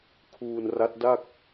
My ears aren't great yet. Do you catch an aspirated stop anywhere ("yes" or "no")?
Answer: yes